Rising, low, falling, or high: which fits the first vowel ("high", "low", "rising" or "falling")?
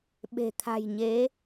low